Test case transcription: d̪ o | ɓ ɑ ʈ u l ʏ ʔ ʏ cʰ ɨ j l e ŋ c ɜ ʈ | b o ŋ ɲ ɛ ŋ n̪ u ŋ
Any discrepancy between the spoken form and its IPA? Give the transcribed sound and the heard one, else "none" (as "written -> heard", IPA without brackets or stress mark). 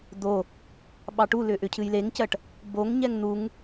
none